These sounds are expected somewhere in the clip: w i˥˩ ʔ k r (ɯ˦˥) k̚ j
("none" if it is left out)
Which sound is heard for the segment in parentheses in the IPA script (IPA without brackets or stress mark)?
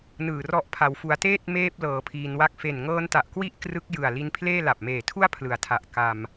ɯ˦˥